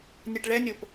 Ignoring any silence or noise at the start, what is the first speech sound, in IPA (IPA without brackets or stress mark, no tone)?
nʲ